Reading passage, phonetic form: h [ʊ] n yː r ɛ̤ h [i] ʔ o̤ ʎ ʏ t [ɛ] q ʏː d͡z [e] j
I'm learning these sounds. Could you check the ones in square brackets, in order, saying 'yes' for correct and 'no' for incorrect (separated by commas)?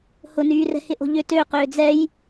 yes, no, no, no